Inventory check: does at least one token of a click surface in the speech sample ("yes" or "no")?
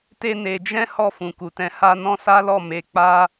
no